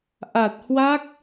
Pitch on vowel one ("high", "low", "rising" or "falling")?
low